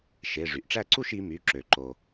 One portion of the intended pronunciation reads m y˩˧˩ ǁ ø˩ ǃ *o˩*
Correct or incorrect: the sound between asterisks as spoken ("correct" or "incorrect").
correct